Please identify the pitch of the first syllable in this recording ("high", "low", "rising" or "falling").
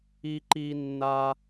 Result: high